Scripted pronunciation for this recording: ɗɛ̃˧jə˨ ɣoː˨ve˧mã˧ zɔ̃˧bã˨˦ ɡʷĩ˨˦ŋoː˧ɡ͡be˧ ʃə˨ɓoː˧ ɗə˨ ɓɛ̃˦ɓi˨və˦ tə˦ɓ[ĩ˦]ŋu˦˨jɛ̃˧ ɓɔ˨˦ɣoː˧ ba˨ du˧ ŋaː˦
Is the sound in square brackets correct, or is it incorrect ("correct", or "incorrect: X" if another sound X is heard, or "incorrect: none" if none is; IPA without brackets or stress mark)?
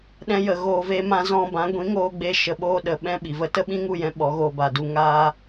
correct